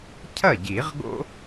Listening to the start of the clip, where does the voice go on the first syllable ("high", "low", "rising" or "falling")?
falling